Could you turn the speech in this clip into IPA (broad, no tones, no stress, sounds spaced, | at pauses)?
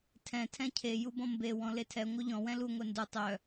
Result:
tʰ ɛ̃ tʰ ɛ̃ cʰ e j u b ɔ̃ m b e w ɔ̃ l e tʰ ɛ ŋʷ œ ʎ ɔ̃ w ɛ̃ l u ŋʷ ɛ n d u tˤ œ